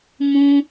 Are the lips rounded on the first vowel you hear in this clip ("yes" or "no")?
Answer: yes